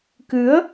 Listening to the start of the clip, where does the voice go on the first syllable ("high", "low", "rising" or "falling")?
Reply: rising